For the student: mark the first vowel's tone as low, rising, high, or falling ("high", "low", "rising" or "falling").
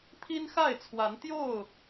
high